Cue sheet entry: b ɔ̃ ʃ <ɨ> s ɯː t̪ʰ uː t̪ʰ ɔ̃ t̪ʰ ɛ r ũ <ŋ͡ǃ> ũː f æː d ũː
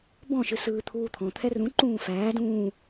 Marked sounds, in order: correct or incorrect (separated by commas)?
correct, incorrect